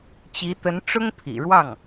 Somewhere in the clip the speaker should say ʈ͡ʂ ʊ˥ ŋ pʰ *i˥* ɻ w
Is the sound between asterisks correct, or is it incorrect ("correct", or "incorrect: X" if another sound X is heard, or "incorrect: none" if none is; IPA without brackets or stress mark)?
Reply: incorrect: ḭ˨˩